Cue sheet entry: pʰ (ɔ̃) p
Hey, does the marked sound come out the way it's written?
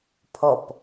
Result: no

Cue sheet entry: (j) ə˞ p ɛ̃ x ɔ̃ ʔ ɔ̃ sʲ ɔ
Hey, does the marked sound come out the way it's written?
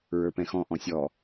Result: no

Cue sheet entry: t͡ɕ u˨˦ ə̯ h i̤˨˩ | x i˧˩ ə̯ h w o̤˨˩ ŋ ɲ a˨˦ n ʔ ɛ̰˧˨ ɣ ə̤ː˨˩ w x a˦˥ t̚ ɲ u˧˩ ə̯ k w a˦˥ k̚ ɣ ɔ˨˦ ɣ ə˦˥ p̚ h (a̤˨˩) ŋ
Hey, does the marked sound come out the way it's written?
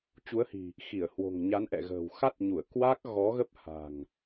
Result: yes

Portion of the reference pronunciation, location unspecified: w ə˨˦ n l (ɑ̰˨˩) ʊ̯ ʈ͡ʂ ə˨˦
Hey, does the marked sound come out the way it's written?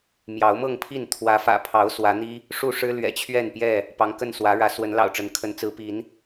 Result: yes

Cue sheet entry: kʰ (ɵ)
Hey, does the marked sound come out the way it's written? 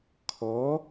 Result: no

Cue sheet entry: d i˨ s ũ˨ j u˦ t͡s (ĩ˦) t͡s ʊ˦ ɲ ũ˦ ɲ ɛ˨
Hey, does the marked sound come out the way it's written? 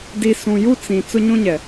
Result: no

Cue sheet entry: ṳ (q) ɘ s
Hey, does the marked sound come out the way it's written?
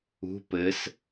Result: no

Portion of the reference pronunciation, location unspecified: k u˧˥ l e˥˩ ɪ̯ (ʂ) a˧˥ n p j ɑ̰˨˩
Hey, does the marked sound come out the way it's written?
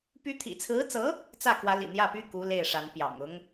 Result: yes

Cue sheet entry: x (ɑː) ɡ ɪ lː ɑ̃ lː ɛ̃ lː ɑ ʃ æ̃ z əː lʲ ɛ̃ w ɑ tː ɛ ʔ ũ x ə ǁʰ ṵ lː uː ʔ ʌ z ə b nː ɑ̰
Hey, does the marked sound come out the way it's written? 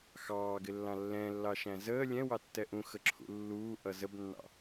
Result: yes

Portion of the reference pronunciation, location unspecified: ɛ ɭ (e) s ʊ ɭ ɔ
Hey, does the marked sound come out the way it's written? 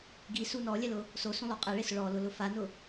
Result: yes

